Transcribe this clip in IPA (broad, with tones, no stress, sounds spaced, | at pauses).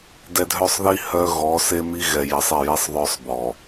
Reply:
d ɛ˨ dʱ œ˦˨ sˤ ð i˦ h œ˦ ɣ ɔ˨˦ s e˦ m i˦ ɣ ɛ˨ j ɛ˨ sˤ e˦˨ j i˦ sˤ ðˤ œ˦ sˤ b ɔ˨